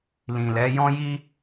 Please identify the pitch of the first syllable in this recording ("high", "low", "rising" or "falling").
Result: low